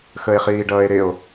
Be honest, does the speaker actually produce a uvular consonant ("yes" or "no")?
yes